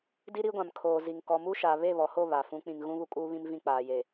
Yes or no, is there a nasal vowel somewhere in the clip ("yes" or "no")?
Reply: yes